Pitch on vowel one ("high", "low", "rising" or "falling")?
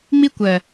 high